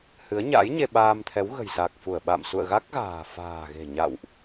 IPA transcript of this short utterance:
hɨ˨˦ə̯ɲa̰˧˥j ɲe˧ɓaː˧mt̪ʰɛ˨˦w ɣə̤˨˩jsa˨˩k̚fu˧˩ə̯ ɓa̰˧˨msṵ˧˨ə̯ ɣa˦˥k̚ɣa̤ː˨˩ fa̤ː˨˩ɣe̤˨˩ ɲa̰˧˨wʔ

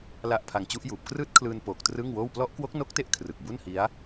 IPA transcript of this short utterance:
la˦˥ʔpʰa˧ŋt͡ɕu˦˥ʔjuː˨˩p̚ krɯː˦˥t̚kʰlɯː˧n poː˨˩k̚trɯ˥˩ŋwoː˥˩w plɔ˦˥ʔkwo˦˥k̚no˦˥k̚te˦˥ʔ kʰrɯ˨˩k̚bu˥˩nhi˦˥a̯

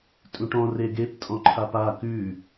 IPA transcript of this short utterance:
tʼũʈɔ̃ reɡep tʼɔ̃ǃʰapa kʉ

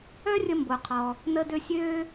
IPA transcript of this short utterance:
œ˥rʲə˧mbo˩ qʰɔ˩ | nə˧dø˧ sʲøː˧

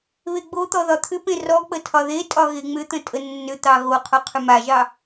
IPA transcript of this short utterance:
βeɡ͡bot̪ɔ ðɒt̪ʰʏpẽ rɔk͡pə tʰɒðetʼɒ ɣeŋ͡mʏt̪ə̃ tʼənːʏt̪ɑ ɣoqʰo qʰʏmaʒɑ

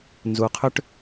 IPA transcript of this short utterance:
nzu˨˩qʰʏ˦ʈ

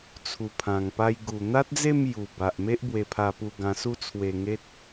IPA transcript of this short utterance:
t͡sʰu˨˩pʰã˨˩ŋpa˧j ɡu˨˩n̪a˦t̚d͡ze˥˧m ju˨˩ba˨ʔ me˦ʔbwe˧pʰa˧pu˧ ɡã˧su˦ t͡sʰwe˧ŋe˦t̚

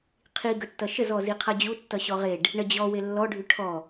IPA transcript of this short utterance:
qʰiɡətːʌ ʃəzɔ ziqʰʌd͡ʑutːʌ ɕɔʁeɖ | ɳəd͡ʑɔ welːɔɖʱy ʈʰɔ

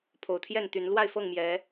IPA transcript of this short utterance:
pʰo˨˩ʊ̯t̪ʰjɛ˥˨nt̪y˨˦n lwa˥˨ɪ̯fɤ˥˨ŋmjɛ˨˦

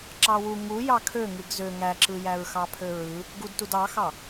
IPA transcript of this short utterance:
ǁɑwu ŋujɑ kʰø ŋɯɡzø ŋæǁɯjæɹ xɑpʰøɹɯ | ɡudtud ɑxɑ

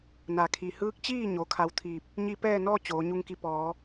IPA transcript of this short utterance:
na˩kʰi˩hɯː˧˥k̚t͡ɕiː˥˨ ɲo˩˧kʰa˧w t̪ʰiː˧˩p̚ | ɲi˧pɛː˥˨nɔː˥˨ t͡ɕoː˩˧ɲu˧ŋki˧ pɔː˩˧

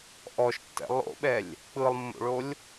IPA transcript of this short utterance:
ʔɔʃtːɛ̰ lˠo̰ɓɛlʲ | k͡pɯlˠmːo̰ɭolʲ

